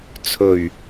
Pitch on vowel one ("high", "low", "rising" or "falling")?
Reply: low